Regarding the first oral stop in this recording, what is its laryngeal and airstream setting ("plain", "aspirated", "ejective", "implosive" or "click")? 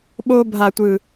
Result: implosive